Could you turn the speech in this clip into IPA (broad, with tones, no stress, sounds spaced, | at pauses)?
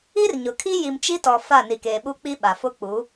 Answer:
i˦ r ɲ ʊ˨ kʰ i˦ j i˨ m t͡ʃ i˦ t ɔ˨ f a˦˨ n i˨ k eː˨ ɓ u˦ k͡p i˦ ɓ a˨ f ʊ˦ k͡p u˨˦